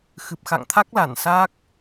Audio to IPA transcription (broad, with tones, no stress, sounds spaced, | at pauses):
x ɨ˨˩ p̚ x a̰˧˨ ŋ t̪ʰ a˦˥ k̚ l a˧˩ n s a˦˥ k̚